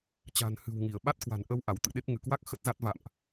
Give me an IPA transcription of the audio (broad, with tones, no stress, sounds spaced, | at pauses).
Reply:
t͡ɕ a̤˨˩ n h ɨ̤˨˩ w ŋ i˧˩ ə̯ ɓ a˦˥ t̚ k w a̤˨˩ n ʔ ə˧ w ʔ a˧˩ w t̪ ɨ̰˧˨ ɗ e˦˥ p̚ ŋ ɨ˧˩ k w a˦˥ k̚ x ə˦˥ t̚ z a˦˥ t̚ v a̰˧˨ m ʔ